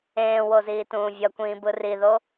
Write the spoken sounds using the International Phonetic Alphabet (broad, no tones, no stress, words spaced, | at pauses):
ẽːwoziːtũː vʲʌkʷĩː bɯriðo